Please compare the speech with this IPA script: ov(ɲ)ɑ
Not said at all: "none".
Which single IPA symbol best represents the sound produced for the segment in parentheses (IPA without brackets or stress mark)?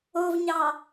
ɲ